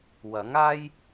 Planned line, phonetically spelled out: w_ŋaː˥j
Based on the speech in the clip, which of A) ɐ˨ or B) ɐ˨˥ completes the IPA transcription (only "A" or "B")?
B